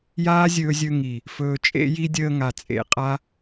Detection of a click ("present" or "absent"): absent